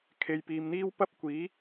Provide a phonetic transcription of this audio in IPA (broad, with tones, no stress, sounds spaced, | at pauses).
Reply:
kʰ e˨ j p iː˨ m n̪ iː˥ w p ɐ˥ p̚ kʷ iː˨˥